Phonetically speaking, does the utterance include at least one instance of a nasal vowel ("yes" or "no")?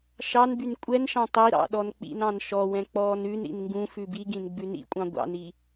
yes